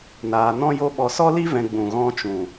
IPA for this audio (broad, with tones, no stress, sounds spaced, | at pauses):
n aː˧ n ɔ̃˦ j o˦ ɓ ɔ˧ s ɔ˦ l i˦ v ɛ̃˧ ɡ͡b ũ˨ ɣ ɔ̃˧ t͡ʃ ũ˨